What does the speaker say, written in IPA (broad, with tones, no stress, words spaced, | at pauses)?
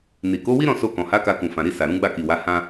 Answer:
ni˨ ko˨˦wi˦ɾɔ̃˦˨ so˧kɔ̃˨ha˨˦ ka˧kũ˨fã˨ɾi˧ sa˨ɾũ˨˦ɡ͡ba˦˨ki˨ wa˨˦hã˦